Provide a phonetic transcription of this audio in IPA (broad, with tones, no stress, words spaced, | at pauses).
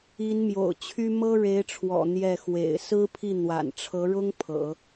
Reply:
i˧˥nmjo̰˨˩ʊ̯t͡ɕʰy˥ mɤ˥ɻe˧˥ɪ̯ʈ͡ʂʰwɔ̰˨˩ n̪jɛ˥˩ xwḛ˨˩ɪ̯ sɹ̩˥pʰi˥˩ n̪wa̰˨˩nʈ͡ʂʰɤ˧˥ɻʊ˥ŋ pʰɤ̰˨˩˦